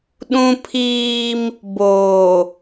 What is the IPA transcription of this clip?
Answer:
ɗ ũ˦ pʰ iː˦ m | b oː˨

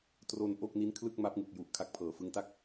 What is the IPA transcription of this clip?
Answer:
t r o˧ n ʔ o˥˩ k̚ n i˦˥ n kʰ l ɯ˥˩ k̚ m a˦˥ p̚ ŋ ɯ˨˩ k̚ j u˨˩ ʔ kʰ a˦˥ k̚ pʰ ɤː˩˦ f ɯ˦˥ ŋ t a˥˩ k̚

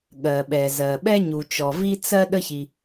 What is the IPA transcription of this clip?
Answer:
ɠ ɜ˩ ɓ ɛ˩ z ɜ˩ ɓ ɛ˥ ɲ u˩ t͡ʃ ɔ˩ v i˥ t͡s ɜ˥ ɗ ə˥ ç i˩

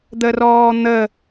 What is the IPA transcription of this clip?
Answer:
d̪ ə r ɔː n̪ ə

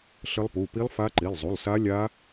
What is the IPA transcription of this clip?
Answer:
ɬ ə˦˥ lˠ p u˩˧˩ p i˦˥ lˠ f a˦˥ ǃ i˩˧˩ lˠ zˤ u˩˧˩ lˠ s a˦˥ lʲ a˦˥

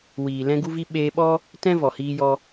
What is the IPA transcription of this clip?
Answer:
w iː˨ l ɛ̃˧ ɡ u˧ v i˧ ɓ eː˧ ɓ ɔ˦ | t ɛ̃˦ v ɔ˨ h iː˧ j ɔ˧

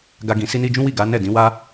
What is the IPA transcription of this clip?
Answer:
ɡ a˧ ɡ ĩ˨ s i˧ n i˧ d͡ʒ ũ˦ w i˦˨ ɡ a˨˦ n ɛ˦˨ d ĩ˨˦ w a˦

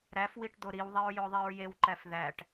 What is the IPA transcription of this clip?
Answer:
ɾ æ f w i ʈ d̪ o ɾ i w ðˤ i ɹ j o ðˤ i ɹ j e w ǃ æ f ð æ ʈ

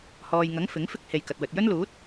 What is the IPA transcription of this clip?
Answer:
h ɔː˨ j ŋ ɐ˨˥ ŋ f ɪ˨˥ ŋ f ɪ˥ k̚ h e˨ j k ɐ˨ t̚ w ɵ˨ t̚ j ɵ˥ n l uː˨˥ t̚

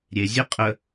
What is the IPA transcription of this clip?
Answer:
ɾʲ e zʲ e qʼ ə

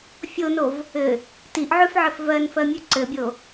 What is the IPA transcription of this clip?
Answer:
fʲ o n o v | ɘ | t i ʔ ʕ ʉ f ʕ ɘ f v ɜ n f ɜ mʲ ʉ ǀ ɘ bʲ o

